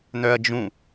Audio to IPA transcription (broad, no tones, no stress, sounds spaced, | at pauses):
n̪ œ ɐ̯ d͡ʒ ũ